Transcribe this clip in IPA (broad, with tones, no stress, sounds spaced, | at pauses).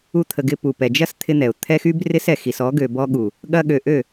u˧ t̪ʰ ə˨ ɡ ɪ˧ p u˨ p ɛ˨ d͡ʒ ɐ˦ s t̪ʰ ɪ˦ n̪ ɛ˨ ʊ̯ t̪ʰ ɛ˦ x y˦ b r ɪ˦ s ɛ˦˨ x i˨ s ɔ˨˦ ɡ ø˨ b ɔ˧ ɠ u˨ | ɠ ɐ˧ ɠ ø˨ ʔ ø˦˨